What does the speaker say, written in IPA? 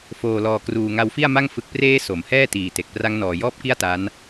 f oː˨˩ l ɔː˨˩ k r uː˨˩ ŋ a˧ w f i˥˩ a̯ m a˥˩ ŋ f ɯ˨˩ k̚ p r eː˦˥ s o˩˦ m h ɛː˥˩ t iː˨˩ t e˨˩ k̚ p r a˦˥ ŋ n ɔː˨˩ j ɔː˥˩ p̚ k i˥˩ a̯ t a˦˥ n

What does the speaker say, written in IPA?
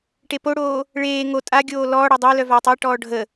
ʈ e p o ɽ oː | ɭ eː ŋ o tʼ a ɡʲ oː l ɔː ɽ əː dˤ o l œ v a tˤ a ʈ ɔː ɖʱ ə

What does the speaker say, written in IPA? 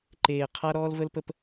ǃ eː˨ qʰ a˦ ɾ ɔː˦ l v ə˦ l p ə˦ p

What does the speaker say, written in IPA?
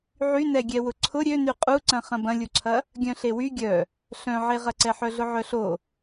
ʕ y n ɛ ɡʲ ɛ w ʊ ǀʰ ʊ ɾʲ ø n y qʼ u ǀ ɐ̃ χ ɐ̃ b ɐ̃ lʲ u ǀʰ ɐ | ɡʲ œ̃ ɬ e w y ɡʲ œ | ɬ œ̃ ʕ e ʁ ɐ ǀ ɛ ħ œ ɮ ʊ ʕ œ ɬ o

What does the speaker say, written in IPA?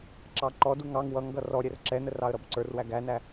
ǁ ɑ ǃ ɔ d u ŋ ɑ ŋ w ʌ ŋ ɡ ʌ r ɔ ɾʲ ɛ r ǁ ɛ n ə r ɑ ə̯ ɾ ʌ b ǀ ə˞ r w æ ɡ æ n æ

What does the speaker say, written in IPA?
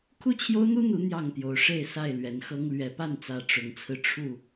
kʰ u˥˨ t͡ɕʰ j o˦ ʊ̯ n̪ u˦ n̪ u˨˦ n̪ j ɑ˥˨ ŋ t̪ j o˨˦ ʊ̯ ʂ e˥˨ ɪ̯ s a˥˨ ɪ̯ l ɥ ɛ˨˦ n x ɤ˦ ŋ l ɥ ɛ˨˦ p a˥˨ n t͡s ä˨˦ ʈ͡ʂ ʊ˨˦ ŋ t͡sʰ ɹ̩˧ ʈ͡ʂʰ u˥˨

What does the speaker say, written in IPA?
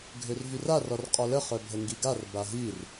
ɡʱ ø r v y r a r ɔ r qʼ ɔ l ə χ œ bʱ ə ŋ ɡ i ɡ a r b a ɦ i r

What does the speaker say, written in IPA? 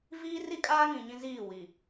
v iː˦ r i˦ kʼ aː˦ ŋ ĩ˨ ɲ ĩ˦ z iː˦˨ w i˨

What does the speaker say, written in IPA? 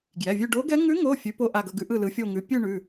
ɡ j ɛ˩˧˩ vʲ ʉ˥˧ ɖ o˧˥ ɡ ɛ˧˥ ŋ ʉ˧˥ ŋ o˩˧˩ fʲ ʉ˧˥ p o˧˥ ʔ a˩˧˩ ɡ ʌ˥˧ ɡ ʉ˧˥ ʔ ɯ˥˧ l ɯ˧˥ fʲ o˥˧ ŋ ʉ˧˥ pʲ ʉ˥˧ ɳ ʉ˩˧˩

